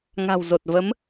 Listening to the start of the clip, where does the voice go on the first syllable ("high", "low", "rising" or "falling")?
low